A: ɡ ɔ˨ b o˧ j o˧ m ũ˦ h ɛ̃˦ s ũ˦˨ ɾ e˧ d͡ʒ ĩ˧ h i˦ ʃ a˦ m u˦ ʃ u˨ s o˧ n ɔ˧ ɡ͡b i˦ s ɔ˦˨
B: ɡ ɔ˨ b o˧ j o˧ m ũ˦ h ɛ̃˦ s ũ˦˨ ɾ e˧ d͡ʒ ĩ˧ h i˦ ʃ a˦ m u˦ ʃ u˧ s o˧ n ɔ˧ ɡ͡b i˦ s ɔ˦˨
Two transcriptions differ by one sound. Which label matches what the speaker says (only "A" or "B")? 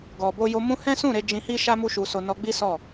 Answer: B